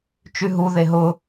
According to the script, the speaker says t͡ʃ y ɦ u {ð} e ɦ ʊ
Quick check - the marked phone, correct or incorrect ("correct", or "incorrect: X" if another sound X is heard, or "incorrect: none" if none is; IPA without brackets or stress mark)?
correct